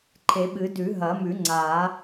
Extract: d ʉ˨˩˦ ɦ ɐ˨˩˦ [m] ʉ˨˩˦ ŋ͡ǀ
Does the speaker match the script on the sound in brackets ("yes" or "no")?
yes